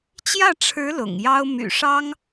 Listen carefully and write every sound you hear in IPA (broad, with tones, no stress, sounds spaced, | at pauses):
t͡ɕ j ä˥˩ ʈ͡ʂʰ ɻ̩˧˥ l ʊ̰˨˩ ŋ j ɑ˥ ʊ̯ m y̰˨˩ ʂ ɑ˥ ŋ